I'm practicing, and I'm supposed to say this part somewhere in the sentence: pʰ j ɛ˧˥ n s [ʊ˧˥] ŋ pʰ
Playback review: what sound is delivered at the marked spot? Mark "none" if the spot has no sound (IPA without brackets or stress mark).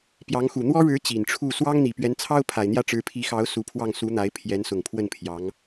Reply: ʊ˨˩